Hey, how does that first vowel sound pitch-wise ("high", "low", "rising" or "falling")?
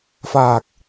low